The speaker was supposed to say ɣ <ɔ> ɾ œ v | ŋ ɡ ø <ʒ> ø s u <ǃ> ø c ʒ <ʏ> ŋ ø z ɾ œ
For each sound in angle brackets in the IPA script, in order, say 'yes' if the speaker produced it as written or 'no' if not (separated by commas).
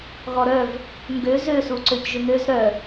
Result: yes, no, no, yes